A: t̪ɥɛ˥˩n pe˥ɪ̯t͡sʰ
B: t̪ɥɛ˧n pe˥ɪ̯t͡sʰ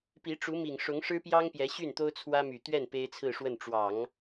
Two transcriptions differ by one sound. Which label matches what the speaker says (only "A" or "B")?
A